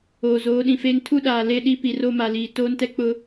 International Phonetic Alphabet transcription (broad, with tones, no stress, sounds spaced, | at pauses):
oː˨ z oː˨˦ ɗ ĩ˨ f eː˦ ŋ tʰ u˦ ɗ aː˨ l e˦˨ ɗ i˦ p i˨ r o˦˨ m a˨ l iː˨ t oː˦ n t ɛ˦ k͡p ʊ˦